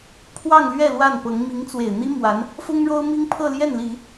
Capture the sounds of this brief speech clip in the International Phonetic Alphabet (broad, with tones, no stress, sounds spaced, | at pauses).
pʰ w ɑ˥˧ ŋ l ɥ ɛ˥˧ l w a˥˩ n p ɤ˧˥ ŋ m i˧˥ ŋ t͡s w e˨˩ ɪ̯ n̪ i˥ m w a˧˥ n | f ʊ˥ ŋ ɻ o˥ ʊ̯ m i˥ ŋ pʰ ɤ˥˧ l j ɛ˥˩ n l i˨˩˦